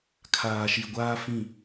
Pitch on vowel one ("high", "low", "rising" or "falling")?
low